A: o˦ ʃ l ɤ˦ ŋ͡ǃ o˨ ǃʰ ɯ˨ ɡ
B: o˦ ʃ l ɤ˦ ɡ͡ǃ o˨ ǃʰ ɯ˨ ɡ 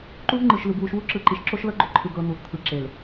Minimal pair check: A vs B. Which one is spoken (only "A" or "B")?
B